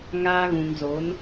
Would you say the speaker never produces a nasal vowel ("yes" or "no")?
no